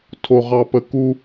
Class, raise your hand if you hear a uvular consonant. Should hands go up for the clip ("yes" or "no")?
yes